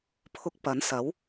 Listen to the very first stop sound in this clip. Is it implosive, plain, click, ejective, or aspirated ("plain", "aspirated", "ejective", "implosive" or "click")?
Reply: aspirated